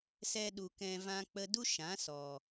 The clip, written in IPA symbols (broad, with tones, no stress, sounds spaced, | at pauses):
s ɛ˧ ɗ u˨ k ɛ̃˧ v ã˦ k͡p ə˦ d u˦ ʃ ã˨˦ s ɔ˨